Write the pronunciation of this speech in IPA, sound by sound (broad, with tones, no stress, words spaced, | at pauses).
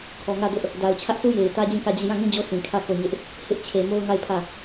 kʰɔ˨ŋä˦˨dʊ˦ʔ | da˨ʊ̯t͡ɕʰä˦ʔsʰu˦ je˨ɪ̯ tä˦d͡ʑĩ˦˨kä˦˨d͡ʑi˦˨ jã˦˨ŋĩ˦ d͡ʑo˦ sĩ˨kʰä˦˨ ko˦˨ɲɪ˦ʔ | hɪ˦ʔ t͡ɕʰe˨mo˦ʊ̯ŋa˦˨ɪ̯ pʰä˦˨